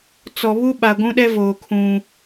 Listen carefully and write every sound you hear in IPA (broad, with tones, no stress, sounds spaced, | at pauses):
t͡s ɔ˨ β u˦ ɓ a˨ ɡʷ ũ˦ ɗ ɛ˦ v oː˨ kʰ ũ˦